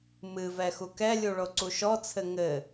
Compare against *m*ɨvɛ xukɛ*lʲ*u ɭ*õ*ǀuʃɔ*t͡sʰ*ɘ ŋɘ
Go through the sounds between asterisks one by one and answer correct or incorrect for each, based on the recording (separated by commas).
correct, correct, incorrect, correct